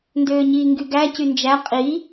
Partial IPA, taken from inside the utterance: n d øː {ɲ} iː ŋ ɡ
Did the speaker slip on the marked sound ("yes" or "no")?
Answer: no